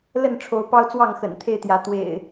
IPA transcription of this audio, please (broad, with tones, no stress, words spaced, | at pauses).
lə˥˨nʈ͡ʂʰo˨˦ʊ̯ pɑ˦ʊ̯t͡swɑ˥˨ŋ xə̰˨˩n t̪ʰe˥˨ɪ̯t̪jä˨˦ t̪wḛ˨˩ɪ̯